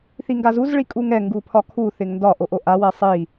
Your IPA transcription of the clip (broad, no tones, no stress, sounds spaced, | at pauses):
θ i ŋ ɡ a z u z ɭ i kʼ u ŋ ɛ ŋ ɡ u pʰ ɒ kʰ u θ ɪ ŋ n d ɒ ʔ o ʔ o ʔ a w ɛ sˤ i